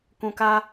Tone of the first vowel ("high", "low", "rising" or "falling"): low